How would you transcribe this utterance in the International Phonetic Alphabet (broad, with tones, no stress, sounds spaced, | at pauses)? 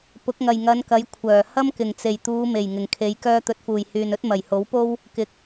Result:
p ʊ˨˥ k̚ ŋ ɐ˨ j ŋ ɐ˨˧ n k ɐ˨˧ j kʷʰ œː˨˩ h ɐ˥ m k ɪ˨˩ ŋ t͡s e˨˩ j t̪ uː˨˧ m e˨˩ j ŋ ɪ˨˩ ŋ kʰ e˨˧ j k œː˧ t̪ ɵ˨ t̚ f uː˨˩ j h yː˨ n ɵ˥ t̚ m ɐ˨˩ j h o˨˥ w p o˥ w | k ɪ˨ k̚